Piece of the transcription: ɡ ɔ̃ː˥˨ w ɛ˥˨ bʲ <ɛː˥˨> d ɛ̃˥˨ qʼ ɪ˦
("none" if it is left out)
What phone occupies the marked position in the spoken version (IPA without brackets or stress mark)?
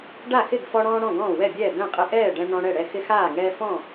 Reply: ɛː˥˨